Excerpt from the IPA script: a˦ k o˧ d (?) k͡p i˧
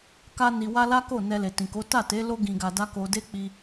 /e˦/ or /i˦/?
e˦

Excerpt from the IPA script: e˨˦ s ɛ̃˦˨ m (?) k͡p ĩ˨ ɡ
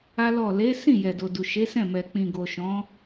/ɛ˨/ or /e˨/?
ɛ˨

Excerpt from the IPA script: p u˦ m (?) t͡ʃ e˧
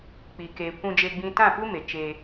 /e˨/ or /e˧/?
e˨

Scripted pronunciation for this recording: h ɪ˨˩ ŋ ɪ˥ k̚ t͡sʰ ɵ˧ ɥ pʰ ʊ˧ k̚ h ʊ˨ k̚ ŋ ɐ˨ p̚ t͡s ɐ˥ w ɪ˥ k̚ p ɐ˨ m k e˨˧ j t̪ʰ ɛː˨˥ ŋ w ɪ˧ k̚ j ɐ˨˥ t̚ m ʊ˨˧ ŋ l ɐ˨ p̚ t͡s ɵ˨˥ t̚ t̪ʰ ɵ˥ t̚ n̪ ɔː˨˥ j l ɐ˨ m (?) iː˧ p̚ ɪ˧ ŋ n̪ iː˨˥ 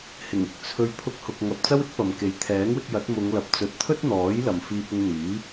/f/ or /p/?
f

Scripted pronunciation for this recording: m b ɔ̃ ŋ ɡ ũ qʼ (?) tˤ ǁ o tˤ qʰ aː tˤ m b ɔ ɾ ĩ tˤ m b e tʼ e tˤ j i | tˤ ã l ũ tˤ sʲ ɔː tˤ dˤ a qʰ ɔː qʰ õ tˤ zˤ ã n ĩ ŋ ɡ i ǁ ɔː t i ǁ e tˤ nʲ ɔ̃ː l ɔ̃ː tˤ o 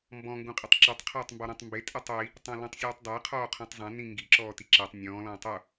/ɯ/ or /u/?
ɯ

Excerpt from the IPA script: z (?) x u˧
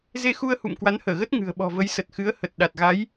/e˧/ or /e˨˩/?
e˧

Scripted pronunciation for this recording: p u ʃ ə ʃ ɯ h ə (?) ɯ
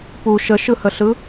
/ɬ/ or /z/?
ɬ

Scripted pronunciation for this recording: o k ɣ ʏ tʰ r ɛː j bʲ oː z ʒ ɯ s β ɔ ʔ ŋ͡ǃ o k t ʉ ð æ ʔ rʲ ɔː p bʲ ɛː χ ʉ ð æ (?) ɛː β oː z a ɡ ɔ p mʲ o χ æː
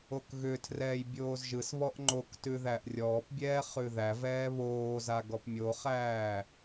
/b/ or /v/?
v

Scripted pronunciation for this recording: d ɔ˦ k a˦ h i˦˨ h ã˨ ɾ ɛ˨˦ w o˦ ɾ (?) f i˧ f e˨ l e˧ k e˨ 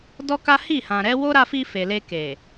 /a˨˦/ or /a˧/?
a˧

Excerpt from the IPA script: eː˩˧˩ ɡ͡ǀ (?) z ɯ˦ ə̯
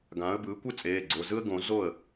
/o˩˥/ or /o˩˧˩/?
o˩˧˩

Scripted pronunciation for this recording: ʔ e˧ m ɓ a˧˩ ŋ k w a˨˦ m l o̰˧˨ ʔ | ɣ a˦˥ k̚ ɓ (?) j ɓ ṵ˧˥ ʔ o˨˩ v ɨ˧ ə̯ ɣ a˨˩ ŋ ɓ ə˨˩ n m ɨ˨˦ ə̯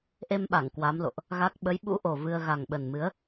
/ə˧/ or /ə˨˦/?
ə˨˦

